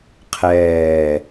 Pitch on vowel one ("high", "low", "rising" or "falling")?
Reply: low